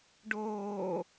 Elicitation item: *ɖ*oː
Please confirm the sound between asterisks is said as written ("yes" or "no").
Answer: yes